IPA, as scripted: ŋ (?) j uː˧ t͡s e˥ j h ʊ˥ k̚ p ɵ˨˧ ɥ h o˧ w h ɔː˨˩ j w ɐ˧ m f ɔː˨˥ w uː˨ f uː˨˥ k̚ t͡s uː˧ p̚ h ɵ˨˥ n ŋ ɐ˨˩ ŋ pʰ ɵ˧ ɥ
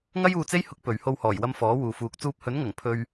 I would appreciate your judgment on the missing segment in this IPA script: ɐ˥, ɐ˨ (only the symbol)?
ɐ˥